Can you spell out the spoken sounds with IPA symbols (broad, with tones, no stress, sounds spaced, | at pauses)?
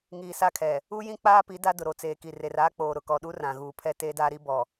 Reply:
ŋ iː˨ s a˦ kʰ ɛ˨ | u˦ j ĩ˦ k͡p aː˦ p i˨˦ d a˦ d ʊ˨ ɾ o˨ t͡s eː˨ k i˨ r e˨ r aː˦ k͡p oː˨ ɾ ʊ˨ k ɔ˨ ɗ u˦ r ã˨ ɣ uː˨ pʰ ɛ˦ t eː˦ d aː˦ ɾ i˦ b ɔ˨